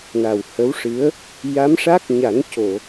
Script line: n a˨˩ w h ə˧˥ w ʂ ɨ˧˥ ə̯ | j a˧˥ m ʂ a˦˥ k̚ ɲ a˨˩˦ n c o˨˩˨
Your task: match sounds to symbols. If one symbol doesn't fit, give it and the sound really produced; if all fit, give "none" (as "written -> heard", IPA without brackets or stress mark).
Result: none